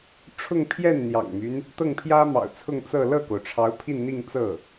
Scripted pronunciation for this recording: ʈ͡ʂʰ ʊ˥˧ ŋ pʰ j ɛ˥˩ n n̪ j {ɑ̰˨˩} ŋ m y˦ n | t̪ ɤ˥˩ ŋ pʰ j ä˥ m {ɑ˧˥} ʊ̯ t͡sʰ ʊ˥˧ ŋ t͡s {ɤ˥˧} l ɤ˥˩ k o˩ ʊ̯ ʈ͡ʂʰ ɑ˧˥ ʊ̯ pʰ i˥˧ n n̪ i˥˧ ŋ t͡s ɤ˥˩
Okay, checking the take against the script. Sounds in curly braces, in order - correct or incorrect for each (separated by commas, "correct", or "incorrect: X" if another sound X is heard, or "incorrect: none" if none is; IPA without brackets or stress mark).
correct, incorrect: ɑ̰˨˩, correct